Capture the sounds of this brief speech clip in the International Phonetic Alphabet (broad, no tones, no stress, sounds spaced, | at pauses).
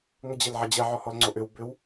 ŋ ə d͡ʑ e l ʕ ɐ d͡ʑ ɛ ʕ ɔ h ɔ l ŋ͡ǀ o ʔ ʏ w b ʏ w